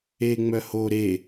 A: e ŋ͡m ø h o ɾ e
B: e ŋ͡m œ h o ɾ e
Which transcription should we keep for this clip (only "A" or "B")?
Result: B